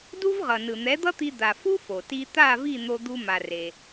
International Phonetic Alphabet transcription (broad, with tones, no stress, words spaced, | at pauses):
du˥vʁʌ˩ nɯ˩n̪ɛ˩˥d̪ʌ˥t̪i˧ d̪a˩fu˥ fo˩ti˧ t̪a˥˩vi˥˩ n̪o˧d̪u˧ ma˩ re˩